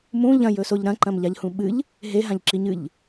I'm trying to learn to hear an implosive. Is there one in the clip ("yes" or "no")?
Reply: yes